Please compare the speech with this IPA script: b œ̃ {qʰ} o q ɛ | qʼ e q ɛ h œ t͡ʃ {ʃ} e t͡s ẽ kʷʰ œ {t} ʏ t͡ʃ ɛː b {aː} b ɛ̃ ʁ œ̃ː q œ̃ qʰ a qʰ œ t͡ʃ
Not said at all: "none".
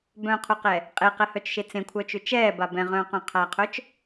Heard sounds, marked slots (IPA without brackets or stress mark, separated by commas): qʰ, ʃ, t͡ʃ, a